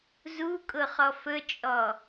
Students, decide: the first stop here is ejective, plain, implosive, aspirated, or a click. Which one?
ejective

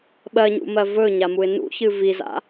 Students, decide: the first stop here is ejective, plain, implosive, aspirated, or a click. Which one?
implosive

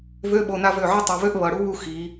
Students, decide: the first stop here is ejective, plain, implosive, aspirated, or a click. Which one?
implosive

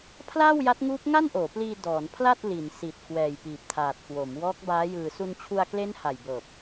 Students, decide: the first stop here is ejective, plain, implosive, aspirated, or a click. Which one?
aspirated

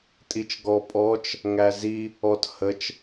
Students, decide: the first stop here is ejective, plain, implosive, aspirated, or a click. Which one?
ejective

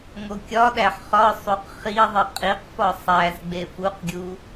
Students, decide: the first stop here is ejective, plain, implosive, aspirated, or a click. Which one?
plain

